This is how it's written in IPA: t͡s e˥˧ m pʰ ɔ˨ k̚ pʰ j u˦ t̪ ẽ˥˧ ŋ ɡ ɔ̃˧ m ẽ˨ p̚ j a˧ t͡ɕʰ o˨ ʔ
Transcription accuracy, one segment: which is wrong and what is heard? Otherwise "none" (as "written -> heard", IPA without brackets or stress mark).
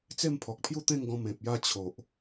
none